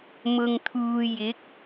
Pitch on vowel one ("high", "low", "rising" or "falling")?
low